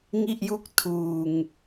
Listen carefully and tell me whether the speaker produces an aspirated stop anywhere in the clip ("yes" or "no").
yes